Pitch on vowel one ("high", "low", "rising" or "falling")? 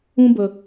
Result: high